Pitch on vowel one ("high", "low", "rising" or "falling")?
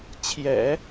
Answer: low